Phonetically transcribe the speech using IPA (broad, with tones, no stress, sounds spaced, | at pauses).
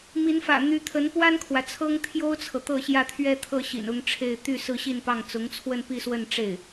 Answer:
m i˧˥ n f ä̰˨˩ n̪ y˧˥ t̪ʰ ə˧˥ n p w a˥ n kʰ w ä˨ t͡sʰ ɤ˥ ŋ t̪ʰ j o˥ ʊ̯ t͡sʰ ɤ˨ t̪ ɤ˥˧ ɕ j ä˥˧ t̪ʰ ɥ ɛ˥˧ t̪ʰ ɤ˥˩ ɕ ḭ˨˩ n ʊ˧˥ ŋ ʈ͡ʂʰ e˥˧ ɪ̯ t̪ y˥˧ s ɹ̩˥˧ ɕ i˥˧ n p ɑ˥˩ ŋ t͡s ʊ˧˥ ŋ t͡sʰ w ə˥˧ n p i˥˧ s w ə˥˧ n ʈ͡ʂ e˥˩ ɪ̯